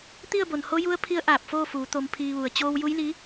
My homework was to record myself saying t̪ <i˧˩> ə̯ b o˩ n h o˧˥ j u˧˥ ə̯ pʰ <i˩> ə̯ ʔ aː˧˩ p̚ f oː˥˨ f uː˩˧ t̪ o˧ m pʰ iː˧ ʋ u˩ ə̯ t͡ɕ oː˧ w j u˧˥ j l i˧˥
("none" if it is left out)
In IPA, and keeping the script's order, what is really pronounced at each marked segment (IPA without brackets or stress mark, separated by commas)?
i˥˨, i˧˥